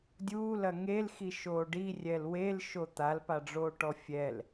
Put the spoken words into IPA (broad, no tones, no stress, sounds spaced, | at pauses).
dʲ uː l ɐ ŋ e l x i ʃ oː ɖ i rʲ ɛ l w e l ʃ o t̪ a l p a ɖ͡ʐ oː ʈ ɔ fʲ ɛ l